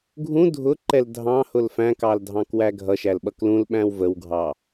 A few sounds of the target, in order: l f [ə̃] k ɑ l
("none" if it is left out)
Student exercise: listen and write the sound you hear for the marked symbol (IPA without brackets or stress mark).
æ̃